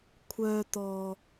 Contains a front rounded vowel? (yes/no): yes